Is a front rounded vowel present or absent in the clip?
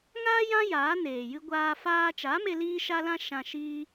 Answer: absent